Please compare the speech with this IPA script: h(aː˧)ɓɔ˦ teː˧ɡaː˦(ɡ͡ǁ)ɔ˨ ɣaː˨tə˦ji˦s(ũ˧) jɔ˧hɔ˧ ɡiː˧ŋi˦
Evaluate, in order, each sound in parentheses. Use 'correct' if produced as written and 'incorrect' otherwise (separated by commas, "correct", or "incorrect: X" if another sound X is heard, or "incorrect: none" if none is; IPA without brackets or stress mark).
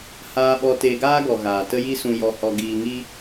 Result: incorrect: aː˦, incorrect: ɡ, correct